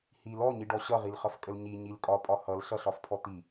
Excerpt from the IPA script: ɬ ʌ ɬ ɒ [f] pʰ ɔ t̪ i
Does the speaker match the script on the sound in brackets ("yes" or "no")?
yes